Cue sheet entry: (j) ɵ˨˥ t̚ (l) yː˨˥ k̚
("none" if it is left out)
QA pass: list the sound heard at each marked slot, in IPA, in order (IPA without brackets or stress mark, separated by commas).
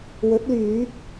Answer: w, l